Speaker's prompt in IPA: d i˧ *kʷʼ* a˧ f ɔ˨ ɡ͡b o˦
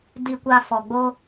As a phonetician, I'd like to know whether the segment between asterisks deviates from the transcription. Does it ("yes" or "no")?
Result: yes